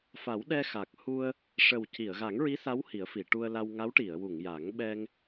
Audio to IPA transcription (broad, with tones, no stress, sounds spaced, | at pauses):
f a˨˩˦ w ɗ ɛ˧ x a˨˩ k̚ h u˧ ə̯ | ʂ ə˨˩ w c i˨˩˨ ə̯ ɣ a˨˩˦ ŋ ɹ i˧˥ s a˧˥ w h i˨˩˦ ə̯ f i˨˩˨ ʈ u˧ ə̯ l a˧ w ŋ a˧˥ w ʈ i˨˩˨ ə̯ w u˨˩˨ ŋ j a˨˩˦ ŋ ɓ ɛ˧ ŋ